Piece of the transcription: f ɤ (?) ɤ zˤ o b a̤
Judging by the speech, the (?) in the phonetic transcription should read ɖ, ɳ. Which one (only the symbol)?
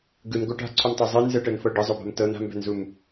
ɖ